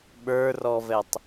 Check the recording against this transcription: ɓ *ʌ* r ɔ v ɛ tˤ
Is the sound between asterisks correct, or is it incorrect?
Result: incorrect